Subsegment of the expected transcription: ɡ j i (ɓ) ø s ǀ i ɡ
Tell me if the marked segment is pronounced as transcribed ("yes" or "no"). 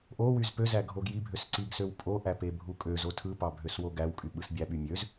no